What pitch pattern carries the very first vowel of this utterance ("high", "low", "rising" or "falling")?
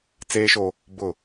high